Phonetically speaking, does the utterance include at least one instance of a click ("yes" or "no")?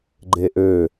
yes